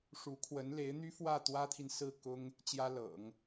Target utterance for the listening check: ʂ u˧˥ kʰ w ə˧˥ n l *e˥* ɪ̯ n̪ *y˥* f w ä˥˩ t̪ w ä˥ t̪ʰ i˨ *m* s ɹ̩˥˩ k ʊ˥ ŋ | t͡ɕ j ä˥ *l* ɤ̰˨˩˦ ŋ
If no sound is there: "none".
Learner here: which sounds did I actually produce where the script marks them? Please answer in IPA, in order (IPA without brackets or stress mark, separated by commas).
e˧˥, y˥, n, l